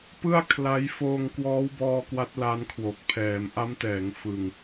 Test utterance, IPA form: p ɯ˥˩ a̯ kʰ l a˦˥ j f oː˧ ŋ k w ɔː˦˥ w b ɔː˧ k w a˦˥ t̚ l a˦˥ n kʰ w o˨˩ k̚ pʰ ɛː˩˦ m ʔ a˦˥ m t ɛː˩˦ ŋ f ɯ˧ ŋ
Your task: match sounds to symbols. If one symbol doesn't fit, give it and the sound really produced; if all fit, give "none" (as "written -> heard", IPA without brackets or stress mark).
none